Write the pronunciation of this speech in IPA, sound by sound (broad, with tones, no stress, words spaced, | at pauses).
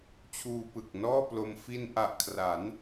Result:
t͡ɕʰuː˧pɯ˨˩k̚nɔː˥˩plo˧m fi˧nʔa˨˩ʔkʰra˩˦n